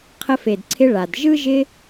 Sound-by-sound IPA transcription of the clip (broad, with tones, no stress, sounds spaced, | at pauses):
qʰ ə˧ f e˨ d ǀʰ ɪ˧ ɭ a˨ d ʒ ɯ˦ ʒ ɪ˧